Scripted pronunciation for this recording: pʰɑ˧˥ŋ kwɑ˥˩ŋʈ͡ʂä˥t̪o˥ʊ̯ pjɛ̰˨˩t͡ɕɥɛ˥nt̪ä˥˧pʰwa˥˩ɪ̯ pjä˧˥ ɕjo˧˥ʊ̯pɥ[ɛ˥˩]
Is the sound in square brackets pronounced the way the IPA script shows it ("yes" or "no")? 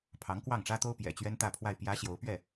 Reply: yes